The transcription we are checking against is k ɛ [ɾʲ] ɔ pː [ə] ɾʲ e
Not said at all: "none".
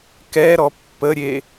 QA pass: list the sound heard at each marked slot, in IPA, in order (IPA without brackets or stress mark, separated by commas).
ɾ, ə